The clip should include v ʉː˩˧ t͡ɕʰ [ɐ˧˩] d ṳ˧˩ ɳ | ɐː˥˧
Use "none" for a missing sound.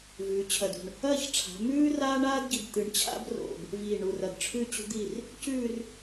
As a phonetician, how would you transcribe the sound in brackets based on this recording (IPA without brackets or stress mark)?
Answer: ɐ˧˩